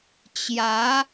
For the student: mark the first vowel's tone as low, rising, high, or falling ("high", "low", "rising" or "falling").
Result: rising